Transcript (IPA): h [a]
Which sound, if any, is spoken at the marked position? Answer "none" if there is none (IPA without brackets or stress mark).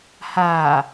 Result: a